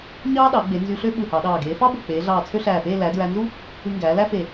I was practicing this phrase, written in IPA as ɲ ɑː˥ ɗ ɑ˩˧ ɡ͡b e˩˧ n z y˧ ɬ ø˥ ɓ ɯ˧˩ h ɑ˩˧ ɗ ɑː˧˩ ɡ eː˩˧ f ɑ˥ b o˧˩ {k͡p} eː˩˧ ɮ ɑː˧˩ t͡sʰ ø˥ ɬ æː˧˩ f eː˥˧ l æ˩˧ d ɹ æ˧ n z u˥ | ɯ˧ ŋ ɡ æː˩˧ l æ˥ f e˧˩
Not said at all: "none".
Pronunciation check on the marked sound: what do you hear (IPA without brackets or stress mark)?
k͡p